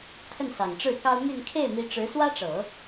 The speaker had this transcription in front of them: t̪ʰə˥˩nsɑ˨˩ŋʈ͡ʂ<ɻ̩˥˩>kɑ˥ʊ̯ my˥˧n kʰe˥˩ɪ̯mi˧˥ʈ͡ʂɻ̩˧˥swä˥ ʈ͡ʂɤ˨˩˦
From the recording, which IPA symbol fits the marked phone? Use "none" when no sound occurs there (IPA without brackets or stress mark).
ɻ̩˥˩